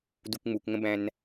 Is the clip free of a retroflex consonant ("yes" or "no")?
yes